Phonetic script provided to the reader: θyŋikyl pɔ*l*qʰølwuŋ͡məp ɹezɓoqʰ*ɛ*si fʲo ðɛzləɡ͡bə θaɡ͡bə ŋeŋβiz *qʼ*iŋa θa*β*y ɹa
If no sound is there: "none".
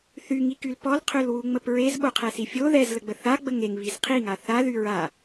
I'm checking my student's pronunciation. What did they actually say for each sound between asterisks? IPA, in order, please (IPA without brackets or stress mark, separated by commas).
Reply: l, ɛ, qʰ, ð